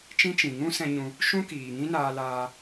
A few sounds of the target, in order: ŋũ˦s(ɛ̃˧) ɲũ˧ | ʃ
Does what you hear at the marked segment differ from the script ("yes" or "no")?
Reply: no